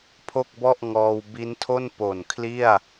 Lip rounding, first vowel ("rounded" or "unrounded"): rounded